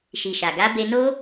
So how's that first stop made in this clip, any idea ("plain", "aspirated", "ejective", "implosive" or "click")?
plain